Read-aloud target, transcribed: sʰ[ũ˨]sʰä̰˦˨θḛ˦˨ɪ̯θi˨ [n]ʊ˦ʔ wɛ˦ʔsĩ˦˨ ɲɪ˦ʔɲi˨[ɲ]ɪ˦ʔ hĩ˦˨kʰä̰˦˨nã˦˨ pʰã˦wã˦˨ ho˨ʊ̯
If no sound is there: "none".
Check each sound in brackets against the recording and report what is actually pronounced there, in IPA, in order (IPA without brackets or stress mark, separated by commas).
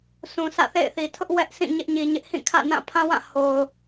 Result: ũ˨, tʰ, ɲ